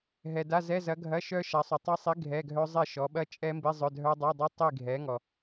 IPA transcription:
ɦ ɛ˨ d a˧˥˧ z ɛ˧˥˧ z ɐ˨˥ ɡʱ ɐ˧˥˧ ʃ œ˦˥ ʃ a˨˥ sˤ u˨ tˤ ɛ˦˥ sˤ i˨˥ ɡʱ ɛ˧˥˧ ɡʱ œ˦˥ zˤ ɛ˥˨ ʃ ɔ˨˥ ɓ ɐ˦˥ t͡ʃʼ ɛ˦˥ m b i˧˥˧ zˤ œ˧˥˧ dʱ œ˦˥ dˤ a˧˥˧ dˤ ɐ˦˥ tˤ i˥˨ ɡʱ ɛ˨˥ ŋ ɔ˨

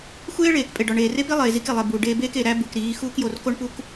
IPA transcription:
xʷ eː˦ ɭ eː˨ k pʼ e˨ ɖ ɒ˨ ɳ eː˨ r e˦ p i˦ lˠ eː˨ z i˦ k e˨ lˠ e˨ b uː˨ ɖ eː˦ b eː˦ k e˨ ɾ æ˦ b u˨ k ɾ iː˨˦ x uː˦ k j o˨ r k o˦ ɳ p u˦ k

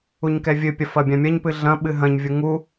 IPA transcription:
u ɲ k ɛ vʲ ɨ pʲ ɐ f ɐ bʲ ã mʲ ɐ ɲ p ɨ ɮ ɐ̃ ɓ ɨ ɦ ɐ̃ ɲ vʲ u ŋ u

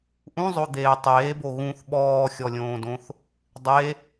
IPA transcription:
ʔ ũ zˤ o d̪ eː tˤ eː b o ɣ ũ θ ɓ ɔː xʲ ɔ lʲ õː d õ θ | dˤ e

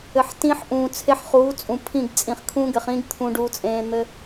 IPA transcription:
ɘ˨ ħ t ĩ˦ ħ ʔ ũː˨ t͡sʰ e˦ ħ χ uː˨˦ t͡sʼ ũ˨ pʰ ĩ˦˨ ɡ t͡sʼ ĩ˨ χ kʰ ũ˦ ɡ ɘ˨ χ ĩ˦ ɡ t̪ʰ ũ˦ ɖ uː˦ t͡sʼ ẽː˦ n̪ ɘ˦

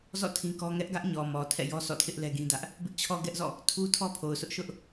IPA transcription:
z ɔ̰˦˨ tʰ ĩ˦ k ɔ˦ ŋ ɛ˦ ʔ ɡ ä˦ ʔ ɲ ɔ˨ m ɔ˨ tʰ ɛ̰˦˨ j ɔ˦ sʰ ɔ̰˦˨ tʰ ɪ˦ ʔ l ɛ˦ ɡ ĩ˦ d ä˦ ʔ | b ɪ˦ ʔ t͡ɕʰ ɔ˦ ɡ ɛ˦ ʔ z ɔ̰˦˨ | tʰ u˦ tʰ ɔ˦ pʰ o˨ ʊ̯ sʰ ʊ˦ ʔ ʃ ʊ˦ ʔ

